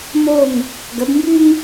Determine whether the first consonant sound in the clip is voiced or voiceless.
voiced